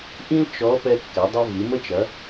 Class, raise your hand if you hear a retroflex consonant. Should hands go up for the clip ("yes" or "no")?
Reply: no